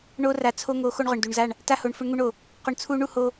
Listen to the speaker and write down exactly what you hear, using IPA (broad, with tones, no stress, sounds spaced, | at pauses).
ɳ o˧ r a˨ t͡sʰ o˧ ŋ o˨˦ x o˧ ɳ ʁ ʊ˨ ɳ d u˨ ɳ z a˦˨ ɳ | t a˧ h o˨ ɳ f ʊ˧ ɳ ŋ u˧ ɳ o˨ | q ʊ˧ ɳ t͡sʰ u˦ ɳ u˦ h o˦